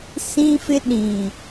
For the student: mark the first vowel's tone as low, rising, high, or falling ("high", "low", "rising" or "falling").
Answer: high